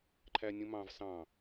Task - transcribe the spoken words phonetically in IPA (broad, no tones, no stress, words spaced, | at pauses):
ǃʰænʲũmɑ̃v sɑ̃